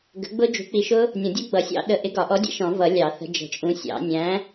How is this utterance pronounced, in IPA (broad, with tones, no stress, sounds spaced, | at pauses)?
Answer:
ɡ ə̤˨˥ ɡ͡b ʊ˦˥ d͡ʒ ṳ˨˥ k͡p i˨˥ ʃ ʊ˦˥ | nʲ ɔ̃˨˩˦ dʲ u˦˥ ɡ͡b ʌ˨˩˦ sʲ ɑ̰˦˥ ɗ ə˨˥ ʔ ɪ˨˥ ɡ ɒ˨˩˦ ʔ ɔ˨˥ dʲ ɛ̰˨˩˦ ʃ ɔ̃˨˩˦ v ʌ˨˩˦ lʲ ɑ˨˩˦ θ ə̤˨˥ d͡ʒ ə̤˨˩˦ t͡ʃʼ ũ˨˥ sʲ ɑ̰˨˩˦ nʲ æ̃˨˥